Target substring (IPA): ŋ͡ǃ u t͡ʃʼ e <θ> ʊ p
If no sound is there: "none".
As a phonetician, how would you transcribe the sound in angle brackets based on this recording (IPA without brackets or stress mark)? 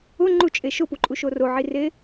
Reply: ʃ